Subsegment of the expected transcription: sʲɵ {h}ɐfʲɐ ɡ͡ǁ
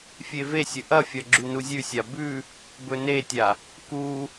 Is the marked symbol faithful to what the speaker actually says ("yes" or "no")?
no